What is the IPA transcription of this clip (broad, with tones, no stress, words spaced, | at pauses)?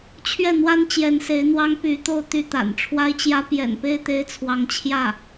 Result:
t͡ɕʰɥɛ˥˩n̪wa˥n t͡ɕjɛ˧˥nse˧˥ɪ̯n̪wɑ˥ŋ py˧˥t̪o˥˧ʊ̯ t̪y˥˩t̪a̰˨˩n ʈ͡ʂʰwa˥ɪ̯t͡ɕjä˥ pjɛ̰˨˩npe˥ɪ̯t̪e˧˥ɪ̯ t͡sʰwɑ˧˥ŋt͡ɕʰjä˥˩